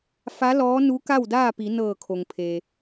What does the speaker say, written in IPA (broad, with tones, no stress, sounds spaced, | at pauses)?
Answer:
f a˧˥ l ɔː˧˥ n u˧˥ k a˥˨ w d aː˥˨ p i˩˧ n ɤː˧˩ kʰ o˩ ŋ pʰ eː˩